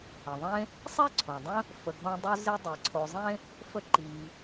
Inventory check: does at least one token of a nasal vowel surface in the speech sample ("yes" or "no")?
yes